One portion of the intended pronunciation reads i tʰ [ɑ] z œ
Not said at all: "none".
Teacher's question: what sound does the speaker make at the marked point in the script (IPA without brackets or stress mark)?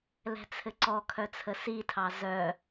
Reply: ɑ